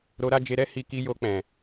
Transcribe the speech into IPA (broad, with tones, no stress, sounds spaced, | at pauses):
ɾ o˧ ɾ a˦ d͡ʒ e˧ ɾ ɛ˦ h i˧ k i˧ j o˧ k͡p ɛ̃˨